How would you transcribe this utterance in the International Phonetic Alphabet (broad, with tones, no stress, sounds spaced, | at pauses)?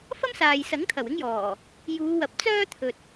f ɐ˥ m s aː˨ j s ɐ˨˥ ŋ t̪ʰ ɐ˨˩ w ɪ˥ ŋ j ɔː˨˩ | j uː˨˧ w ɐ˨˥ p̚ t͡s œː˥ t̪ʰ ɵ˨ t̚